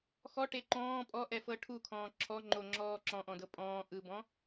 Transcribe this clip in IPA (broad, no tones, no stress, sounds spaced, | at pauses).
x ɔ ʈ e ǃ ɔ̃ː pʼ ɔ ʔ ɛ f ɤ ʈʰ u kʰ ɔ̃ː ǁʰ ɔ ŋ͡ǃ o ŋ͡ǁ ɔː ǁ ɔ̃ ʔ ɔ̃ d ɤ pʼ ɔ̃ː ʔ ɯ b ɔ̃